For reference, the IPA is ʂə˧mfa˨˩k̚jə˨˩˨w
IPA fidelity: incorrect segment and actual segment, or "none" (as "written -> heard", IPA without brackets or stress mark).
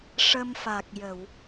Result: none